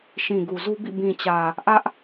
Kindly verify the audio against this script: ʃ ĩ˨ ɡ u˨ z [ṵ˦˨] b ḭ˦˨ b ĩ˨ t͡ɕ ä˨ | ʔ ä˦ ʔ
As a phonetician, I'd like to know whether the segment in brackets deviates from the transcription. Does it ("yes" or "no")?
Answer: yes